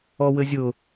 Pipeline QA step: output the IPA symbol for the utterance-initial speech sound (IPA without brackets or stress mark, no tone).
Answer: ɔ